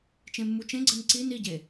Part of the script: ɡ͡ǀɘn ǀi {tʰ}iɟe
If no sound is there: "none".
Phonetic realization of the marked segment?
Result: n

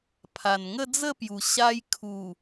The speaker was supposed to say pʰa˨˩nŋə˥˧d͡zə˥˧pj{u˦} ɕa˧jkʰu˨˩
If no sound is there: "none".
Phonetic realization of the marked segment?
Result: u˨˩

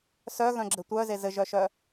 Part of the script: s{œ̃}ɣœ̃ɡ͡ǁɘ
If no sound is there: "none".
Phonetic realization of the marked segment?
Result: œ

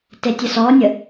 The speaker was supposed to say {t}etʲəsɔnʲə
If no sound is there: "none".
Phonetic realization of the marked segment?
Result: t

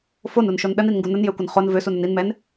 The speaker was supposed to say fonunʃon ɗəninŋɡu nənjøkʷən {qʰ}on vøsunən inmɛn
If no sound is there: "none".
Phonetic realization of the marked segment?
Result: χ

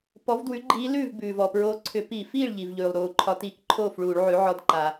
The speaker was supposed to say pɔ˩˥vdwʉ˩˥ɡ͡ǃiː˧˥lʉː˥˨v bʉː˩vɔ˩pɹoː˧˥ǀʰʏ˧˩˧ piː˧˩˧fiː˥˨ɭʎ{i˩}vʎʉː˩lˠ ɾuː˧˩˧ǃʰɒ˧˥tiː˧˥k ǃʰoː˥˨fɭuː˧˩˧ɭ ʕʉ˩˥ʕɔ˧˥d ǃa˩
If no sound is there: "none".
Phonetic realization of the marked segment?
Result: i˩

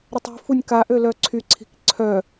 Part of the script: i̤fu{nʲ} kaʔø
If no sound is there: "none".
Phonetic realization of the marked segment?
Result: nʲ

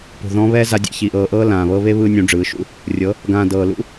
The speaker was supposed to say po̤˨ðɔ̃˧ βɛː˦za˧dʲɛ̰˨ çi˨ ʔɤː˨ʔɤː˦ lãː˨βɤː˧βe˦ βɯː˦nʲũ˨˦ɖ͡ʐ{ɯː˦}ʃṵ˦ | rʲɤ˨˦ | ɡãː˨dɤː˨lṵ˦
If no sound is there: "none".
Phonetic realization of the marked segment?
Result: ɯː˨˦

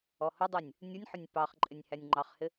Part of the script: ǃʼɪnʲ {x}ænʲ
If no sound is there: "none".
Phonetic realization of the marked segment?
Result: h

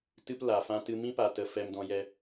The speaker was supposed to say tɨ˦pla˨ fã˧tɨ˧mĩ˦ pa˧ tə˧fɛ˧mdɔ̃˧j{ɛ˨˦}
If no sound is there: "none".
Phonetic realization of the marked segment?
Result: ɛ˧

